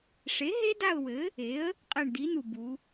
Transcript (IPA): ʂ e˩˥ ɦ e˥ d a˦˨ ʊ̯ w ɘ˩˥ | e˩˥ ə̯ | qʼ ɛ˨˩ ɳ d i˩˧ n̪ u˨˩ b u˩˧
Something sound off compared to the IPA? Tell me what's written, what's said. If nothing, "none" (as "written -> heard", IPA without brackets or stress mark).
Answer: none